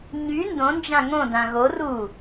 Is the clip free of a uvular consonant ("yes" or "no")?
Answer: yes